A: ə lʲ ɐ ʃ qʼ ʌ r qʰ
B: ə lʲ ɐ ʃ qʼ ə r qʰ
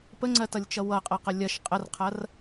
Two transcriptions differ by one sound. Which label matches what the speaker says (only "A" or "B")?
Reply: B